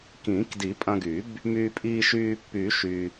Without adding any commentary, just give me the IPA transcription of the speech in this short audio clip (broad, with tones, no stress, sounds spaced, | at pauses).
k ĩː˨˩˦ k d i˨˩˦ pʼ ɐ̃˧ ɡ y˨˩˦ b | m yː˧ pʼ iː˧ ʃ yː˧ pː y˨˩˦ ʃ y˧